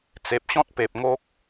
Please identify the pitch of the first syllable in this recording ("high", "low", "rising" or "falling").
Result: low